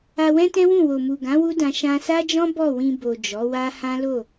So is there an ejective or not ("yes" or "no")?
no